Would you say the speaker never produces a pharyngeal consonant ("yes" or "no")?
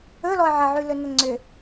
no